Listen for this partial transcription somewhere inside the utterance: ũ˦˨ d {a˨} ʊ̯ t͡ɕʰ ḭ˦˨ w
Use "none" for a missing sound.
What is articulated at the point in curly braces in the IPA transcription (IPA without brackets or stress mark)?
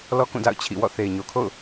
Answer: a̰˦˨